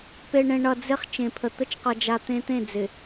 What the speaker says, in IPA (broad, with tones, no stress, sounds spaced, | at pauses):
p e˨ ɳ ẽ˨ ɳ ʌ˨ d͡z ɪ˦ χ t͡ʃ ẽ˨ pʰ ə˨ t̪ ə˦ t͡ʃ q ʌ˨ d͡ʒ a˨ t̪ ẽ˦ t̪ ẽ˦˨ d͡z ɪ˨